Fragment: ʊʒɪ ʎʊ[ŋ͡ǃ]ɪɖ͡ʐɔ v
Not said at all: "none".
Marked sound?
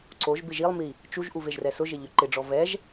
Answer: ǃ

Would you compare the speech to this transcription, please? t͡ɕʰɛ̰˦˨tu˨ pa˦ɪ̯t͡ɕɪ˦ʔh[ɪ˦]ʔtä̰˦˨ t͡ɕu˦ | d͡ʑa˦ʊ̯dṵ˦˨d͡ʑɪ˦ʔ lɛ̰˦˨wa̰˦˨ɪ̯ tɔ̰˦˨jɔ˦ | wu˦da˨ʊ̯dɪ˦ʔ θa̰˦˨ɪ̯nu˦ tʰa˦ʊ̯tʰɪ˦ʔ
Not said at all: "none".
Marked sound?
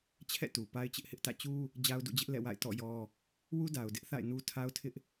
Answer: ɪ˦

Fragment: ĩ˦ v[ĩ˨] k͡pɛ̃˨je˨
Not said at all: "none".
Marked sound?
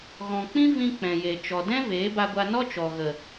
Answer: ĩ˧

